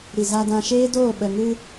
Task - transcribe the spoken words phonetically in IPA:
ɾi˨ za˧dã˧ʃeː˦ doː˦˨ ɓə˨ŋɨ˧

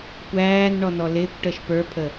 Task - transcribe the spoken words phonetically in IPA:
kʷæːnɳɔnɔ lɪːkʷʈəːʃ pə˞pʰə

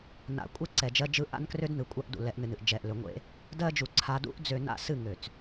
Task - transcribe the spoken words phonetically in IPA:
na̰˨ kʷʼɛ˦ǀɛ˨d͡ʒɜ˦d͡ʒɯ˦ ʔa̰˦n krø˦dnɯ˨kʷʼa˦ʔdṵ˨ lɛ˨˦ʔnɨ˨nɨ˨ʔ d͡ʒɛ˨ʔlø˨ŋʷḛ˦ | dɜ˦d͡ʒu˨ ǀʰa˨dṵ˦ʔd͡zø˨ na̰˦sɨ˦˨ ŋø˨t͡s

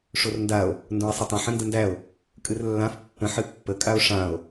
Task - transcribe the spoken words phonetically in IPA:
ʂorndao̯ | ndõe̯sˤətˤə̃ ħə̃ndəndæo̯ | kʼɨrlːãf pːə̃ ħɨpːə kʼao̯ʂão̯

